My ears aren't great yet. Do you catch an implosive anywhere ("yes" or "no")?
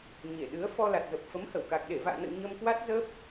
yes